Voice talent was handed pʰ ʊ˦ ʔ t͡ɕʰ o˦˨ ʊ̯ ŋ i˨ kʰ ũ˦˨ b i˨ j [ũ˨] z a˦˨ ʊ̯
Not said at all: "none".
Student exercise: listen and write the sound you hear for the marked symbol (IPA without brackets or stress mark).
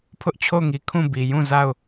ũ˦˨